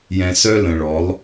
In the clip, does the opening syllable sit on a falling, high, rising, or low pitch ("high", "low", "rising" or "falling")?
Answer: low